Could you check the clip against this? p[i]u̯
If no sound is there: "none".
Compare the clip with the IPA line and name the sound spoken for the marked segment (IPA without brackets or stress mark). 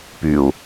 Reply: y